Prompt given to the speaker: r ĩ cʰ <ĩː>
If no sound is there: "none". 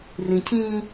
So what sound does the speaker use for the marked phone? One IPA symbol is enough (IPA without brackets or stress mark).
ĩ